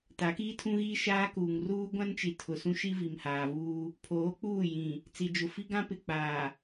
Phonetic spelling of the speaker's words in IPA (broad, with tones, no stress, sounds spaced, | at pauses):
t a˨˦ k iː˦ tʰ ũ˦ ɣ iː˦ ʃ aː˦ k uː˨ ŋ r uː˦ ɡʷ ã˦ n t͡ʃ i˨ tʰ ʊ˨ s ũ˦ ʃ i˦ v i˨ m h aː˨ v uː˦ | pʰ oː˨˦ k͡p uː˦˨ j ĩ˨ | t͡s i˨ d͡ʒ ʊ˨ f i˦ ɡ ã˦ p ɪ˨ k͡p aː˨